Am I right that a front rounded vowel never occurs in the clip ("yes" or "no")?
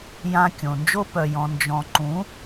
no